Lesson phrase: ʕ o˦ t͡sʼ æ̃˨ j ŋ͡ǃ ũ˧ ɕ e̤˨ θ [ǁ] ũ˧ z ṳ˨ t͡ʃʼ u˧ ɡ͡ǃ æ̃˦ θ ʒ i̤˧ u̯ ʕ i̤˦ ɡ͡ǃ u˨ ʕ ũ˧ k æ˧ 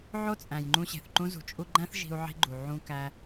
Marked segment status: incorrect: ǃ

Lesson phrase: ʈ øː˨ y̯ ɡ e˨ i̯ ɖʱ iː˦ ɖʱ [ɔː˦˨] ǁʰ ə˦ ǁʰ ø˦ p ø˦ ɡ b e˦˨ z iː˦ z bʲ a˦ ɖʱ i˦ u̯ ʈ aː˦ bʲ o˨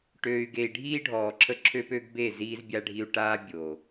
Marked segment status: incorrect: ɔː˨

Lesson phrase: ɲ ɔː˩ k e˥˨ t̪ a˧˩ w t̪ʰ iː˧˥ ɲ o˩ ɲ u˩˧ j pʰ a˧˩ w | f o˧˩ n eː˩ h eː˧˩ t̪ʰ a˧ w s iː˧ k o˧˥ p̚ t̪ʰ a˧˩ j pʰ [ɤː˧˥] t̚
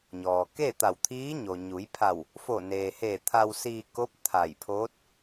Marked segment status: incorrect: oː˧˥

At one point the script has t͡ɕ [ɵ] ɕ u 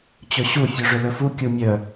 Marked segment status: correct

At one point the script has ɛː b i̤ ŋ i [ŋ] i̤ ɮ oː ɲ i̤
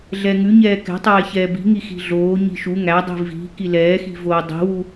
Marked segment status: incorrect: x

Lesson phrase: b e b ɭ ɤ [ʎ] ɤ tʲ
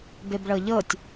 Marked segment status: correct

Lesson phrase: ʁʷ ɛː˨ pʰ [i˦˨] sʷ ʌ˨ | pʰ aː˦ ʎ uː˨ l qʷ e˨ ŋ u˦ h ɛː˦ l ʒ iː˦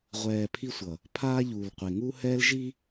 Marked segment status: incorrect: i˦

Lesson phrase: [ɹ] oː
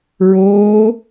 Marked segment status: correct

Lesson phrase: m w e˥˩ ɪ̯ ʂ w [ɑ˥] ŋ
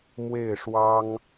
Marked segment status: correct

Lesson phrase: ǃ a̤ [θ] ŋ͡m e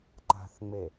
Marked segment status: correct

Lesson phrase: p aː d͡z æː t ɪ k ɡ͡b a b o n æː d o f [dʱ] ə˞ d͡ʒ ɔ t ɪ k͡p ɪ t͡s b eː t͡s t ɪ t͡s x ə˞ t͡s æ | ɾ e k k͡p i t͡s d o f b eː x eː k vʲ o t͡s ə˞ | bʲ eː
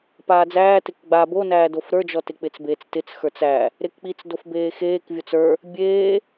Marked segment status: incorrect: ɾ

